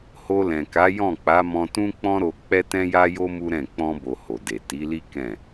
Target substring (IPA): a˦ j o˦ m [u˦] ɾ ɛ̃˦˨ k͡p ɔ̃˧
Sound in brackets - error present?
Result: no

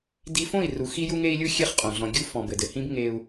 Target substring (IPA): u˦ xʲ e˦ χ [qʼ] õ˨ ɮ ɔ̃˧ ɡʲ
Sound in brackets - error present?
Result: no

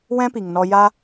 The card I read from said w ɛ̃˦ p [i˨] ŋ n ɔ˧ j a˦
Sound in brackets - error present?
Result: no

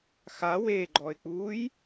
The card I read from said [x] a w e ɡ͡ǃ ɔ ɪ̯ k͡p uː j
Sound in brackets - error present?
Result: no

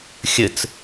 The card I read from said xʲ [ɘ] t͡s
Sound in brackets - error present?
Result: no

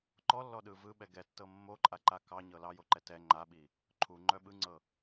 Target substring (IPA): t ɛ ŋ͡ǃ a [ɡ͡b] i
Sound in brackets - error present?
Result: yes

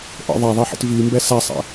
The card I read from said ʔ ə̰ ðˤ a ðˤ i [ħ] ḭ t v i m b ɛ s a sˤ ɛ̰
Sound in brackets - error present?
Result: no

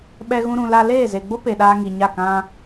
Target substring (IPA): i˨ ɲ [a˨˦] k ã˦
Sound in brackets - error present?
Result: yes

